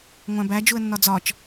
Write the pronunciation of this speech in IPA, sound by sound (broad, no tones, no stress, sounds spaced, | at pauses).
ŋʷ æ̃ b æ d͡ʒ u ə̯ nː ɒ d͡z ɒ t͡ʃ